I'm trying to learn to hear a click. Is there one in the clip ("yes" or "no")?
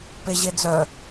no